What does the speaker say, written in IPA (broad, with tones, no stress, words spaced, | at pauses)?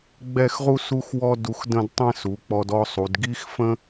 ɡ͡bɛ˥˧xʁu˥ su˥xwɔ˥du˧xdə̃˥˧d tˤɛ̃˥˧su˩˧ k͡pɔ˧dɔ˥˧sˤu˩˧d ɡi˥xfə̃˥